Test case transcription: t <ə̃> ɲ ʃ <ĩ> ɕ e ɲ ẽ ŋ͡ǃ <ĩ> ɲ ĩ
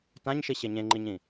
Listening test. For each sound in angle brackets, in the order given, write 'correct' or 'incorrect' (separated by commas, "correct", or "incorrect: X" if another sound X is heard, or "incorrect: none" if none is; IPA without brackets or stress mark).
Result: incorrect: ã, incorrect: i, incorrect: i